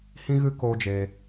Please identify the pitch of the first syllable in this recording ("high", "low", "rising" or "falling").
high